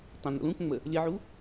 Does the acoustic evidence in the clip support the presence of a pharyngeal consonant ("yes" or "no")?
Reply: yes